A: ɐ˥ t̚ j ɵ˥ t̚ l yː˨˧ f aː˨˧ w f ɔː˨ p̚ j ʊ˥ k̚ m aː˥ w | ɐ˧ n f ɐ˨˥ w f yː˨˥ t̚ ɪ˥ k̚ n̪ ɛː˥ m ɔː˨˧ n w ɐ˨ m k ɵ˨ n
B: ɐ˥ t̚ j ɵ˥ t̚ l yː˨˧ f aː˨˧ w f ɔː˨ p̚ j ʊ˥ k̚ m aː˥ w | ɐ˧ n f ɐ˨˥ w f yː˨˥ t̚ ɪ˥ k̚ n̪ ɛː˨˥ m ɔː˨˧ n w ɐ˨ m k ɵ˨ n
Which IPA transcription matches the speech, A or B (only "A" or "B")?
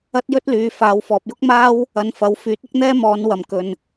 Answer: A